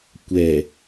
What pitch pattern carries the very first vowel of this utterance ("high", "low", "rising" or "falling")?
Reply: low